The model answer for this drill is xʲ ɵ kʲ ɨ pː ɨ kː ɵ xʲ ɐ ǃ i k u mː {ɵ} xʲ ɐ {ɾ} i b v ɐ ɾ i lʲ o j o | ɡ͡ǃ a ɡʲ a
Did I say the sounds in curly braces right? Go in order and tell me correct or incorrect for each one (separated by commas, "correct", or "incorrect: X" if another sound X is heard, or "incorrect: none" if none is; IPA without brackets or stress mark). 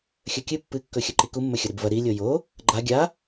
correct, correct